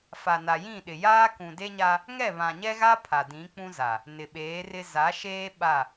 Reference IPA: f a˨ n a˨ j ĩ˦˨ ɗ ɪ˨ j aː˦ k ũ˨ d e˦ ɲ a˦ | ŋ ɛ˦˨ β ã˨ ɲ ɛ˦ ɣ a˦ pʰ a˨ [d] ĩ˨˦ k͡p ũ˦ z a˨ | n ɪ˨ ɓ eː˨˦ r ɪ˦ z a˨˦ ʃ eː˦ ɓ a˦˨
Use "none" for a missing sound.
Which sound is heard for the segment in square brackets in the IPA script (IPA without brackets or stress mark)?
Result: d